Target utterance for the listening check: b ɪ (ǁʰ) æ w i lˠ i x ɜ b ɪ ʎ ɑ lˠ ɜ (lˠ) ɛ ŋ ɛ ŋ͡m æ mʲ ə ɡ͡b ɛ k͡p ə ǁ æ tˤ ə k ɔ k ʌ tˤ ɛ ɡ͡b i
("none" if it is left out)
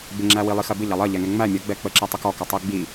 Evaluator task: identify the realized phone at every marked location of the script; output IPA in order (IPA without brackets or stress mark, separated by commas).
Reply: ŋ͡ǁ, ʎ